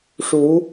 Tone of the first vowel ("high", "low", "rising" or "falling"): rising